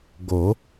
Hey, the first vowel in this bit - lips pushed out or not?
yes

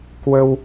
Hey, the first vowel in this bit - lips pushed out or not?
no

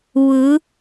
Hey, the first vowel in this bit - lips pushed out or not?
no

